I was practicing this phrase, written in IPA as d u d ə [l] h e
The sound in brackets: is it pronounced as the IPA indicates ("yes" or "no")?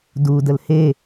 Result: yes